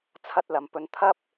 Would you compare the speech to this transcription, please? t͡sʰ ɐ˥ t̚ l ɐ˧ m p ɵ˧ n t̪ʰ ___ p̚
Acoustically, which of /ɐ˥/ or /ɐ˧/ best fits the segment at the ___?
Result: ɐ˥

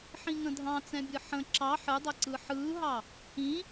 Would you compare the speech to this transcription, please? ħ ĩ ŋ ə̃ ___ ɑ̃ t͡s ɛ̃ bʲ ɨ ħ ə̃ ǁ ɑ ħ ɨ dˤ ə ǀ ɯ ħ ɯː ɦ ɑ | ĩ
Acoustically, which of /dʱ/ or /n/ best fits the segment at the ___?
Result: dʱ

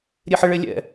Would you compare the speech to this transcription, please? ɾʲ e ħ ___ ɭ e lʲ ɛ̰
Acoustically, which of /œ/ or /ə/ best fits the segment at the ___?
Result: ə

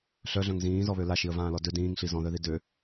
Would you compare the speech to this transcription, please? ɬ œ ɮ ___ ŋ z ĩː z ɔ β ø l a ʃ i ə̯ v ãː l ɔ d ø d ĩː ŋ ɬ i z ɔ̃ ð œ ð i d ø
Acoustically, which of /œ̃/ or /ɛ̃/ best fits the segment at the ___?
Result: œ̃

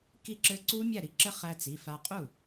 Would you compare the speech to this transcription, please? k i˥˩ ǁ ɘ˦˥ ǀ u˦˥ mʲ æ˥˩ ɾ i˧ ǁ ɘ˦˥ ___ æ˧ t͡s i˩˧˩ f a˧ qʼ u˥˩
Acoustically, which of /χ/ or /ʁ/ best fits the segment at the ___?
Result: χ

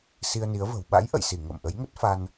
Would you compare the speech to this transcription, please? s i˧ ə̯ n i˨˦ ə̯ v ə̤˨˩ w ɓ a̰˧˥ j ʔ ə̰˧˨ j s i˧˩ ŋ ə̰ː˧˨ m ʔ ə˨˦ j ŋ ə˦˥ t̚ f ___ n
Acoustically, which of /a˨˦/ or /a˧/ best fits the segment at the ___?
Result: a˧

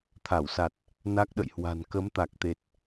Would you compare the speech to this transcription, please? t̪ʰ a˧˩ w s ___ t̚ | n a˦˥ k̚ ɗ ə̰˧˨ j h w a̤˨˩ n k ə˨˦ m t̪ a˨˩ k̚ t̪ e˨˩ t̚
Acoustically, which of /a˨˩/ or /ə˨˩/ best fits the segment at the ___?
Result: a˨˩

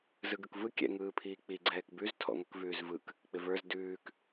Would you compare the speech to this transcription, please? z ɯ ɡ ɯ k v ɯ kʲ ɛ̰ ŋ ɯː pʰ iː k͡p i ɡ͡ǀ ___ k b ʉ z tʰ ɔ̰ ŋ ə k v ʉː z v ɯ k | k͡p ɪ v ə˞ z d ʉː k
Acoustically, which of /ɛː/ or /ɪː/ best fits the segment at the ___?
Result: ɛː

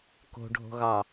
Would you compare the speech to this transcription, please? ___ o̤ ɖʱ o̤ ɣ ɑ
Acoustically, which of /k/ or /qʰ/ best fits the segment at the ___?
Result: k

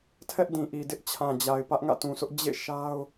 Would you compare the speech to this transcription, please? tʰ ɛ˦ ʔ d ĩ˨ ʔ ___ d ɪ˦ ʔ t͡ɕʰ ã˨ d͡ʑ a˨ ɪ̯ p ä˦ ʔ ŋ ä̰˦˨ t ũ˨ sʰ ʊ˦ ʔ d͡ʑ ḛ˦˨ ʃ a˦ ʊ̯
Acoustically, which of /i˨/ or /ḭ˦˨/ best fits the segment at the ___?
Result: i˨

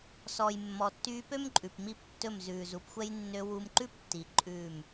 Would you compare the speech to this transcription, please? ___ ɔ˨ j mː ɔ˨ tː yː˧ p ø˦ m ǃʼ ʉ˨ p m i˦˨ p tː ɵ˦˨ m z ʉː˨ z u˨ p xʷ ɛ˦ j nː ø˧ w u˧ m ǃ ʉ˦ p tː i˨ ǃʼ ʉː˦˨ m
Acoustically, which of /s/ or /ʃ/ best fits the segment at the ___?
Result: s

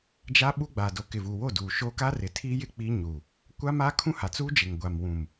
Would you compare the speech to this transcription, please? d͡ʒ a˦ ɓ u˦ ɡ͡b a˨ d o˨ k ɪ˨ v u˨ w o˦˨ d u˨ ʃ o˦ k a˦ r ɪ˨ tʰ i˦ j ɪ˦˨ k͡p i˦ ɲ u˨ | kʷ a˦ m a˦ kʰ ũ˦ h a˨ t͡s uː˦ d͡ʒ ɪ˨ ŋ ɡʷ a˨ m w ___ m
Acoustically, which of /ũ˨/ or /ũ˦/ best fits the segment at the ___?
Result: ũ˨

